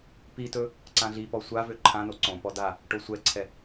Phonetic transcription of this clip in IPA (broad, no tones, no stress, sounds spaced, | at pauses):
p i t ɵ | ǀ ã ɮ i p ɔ sʷ a v ø ǃʰ ã n o ǀ õ p ɔ d a | ʈ o sʷ ɛ ǀʰ ɛ